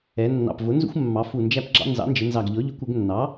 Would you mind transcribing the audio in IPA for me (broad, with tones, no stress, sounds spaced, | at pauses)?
ɛ˩˧ nː ɑ̰˨˩ p v ʊ˩˥ n z ṵ˦ xʷ mː ɑ˩˧ f u˨˩ n d͡ʒ æ˦ p ɡ͡ǁ ɑ̰˦ n z ɑ̰˩˥ n d͡ʒ ɪ˩˧ n z ɑ˨˩ ɡ ʎ ɔ˩˥ ʎ ʊ˩˥ kʷ ɪ˩˧ ɡ nː ɑ˩˥